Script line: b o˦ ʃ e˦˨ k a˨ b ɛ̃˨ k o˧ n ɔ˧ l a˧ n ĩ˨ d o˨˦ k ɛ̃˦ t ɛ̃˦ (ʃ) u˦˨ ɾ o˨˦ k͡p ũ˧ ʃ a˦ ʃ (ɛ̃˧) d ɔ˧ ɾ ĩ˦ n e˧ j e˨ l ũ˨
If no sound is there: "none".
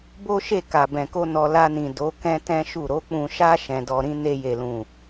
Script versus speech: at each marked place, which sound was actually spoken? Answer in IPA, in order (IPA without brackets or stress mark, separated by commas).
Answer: ʃ, ɛ̃˧